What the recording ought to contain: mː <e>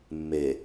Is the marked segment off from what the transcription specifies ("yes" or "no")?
no